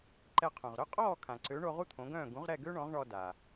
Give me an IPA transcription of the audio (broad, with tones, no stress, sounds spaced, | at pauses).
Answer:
ǃ ɛ˧ qʰ œ̃˩ ʁ ɾ œ˥ qʼ ɔː˥˩ kʰ ã˩ ǀ ø˩˥ ɳ o˧ ʁ u˥ t̪ʰ õ˩˥ ɡ œ̃ː˥˩ ɡ ũ˩˥ ʁ ɾ ɛ˥˩ ɡ ø˥ ɳ ɔ̃˩˥ ʁ ɳ ɔ˧ d a˩